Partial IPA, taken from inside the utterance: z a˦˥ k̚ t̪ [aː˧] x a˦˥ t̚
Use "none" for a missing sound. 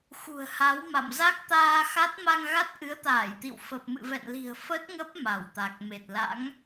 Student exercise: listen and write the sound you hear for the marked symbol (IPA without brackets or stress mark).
aː˧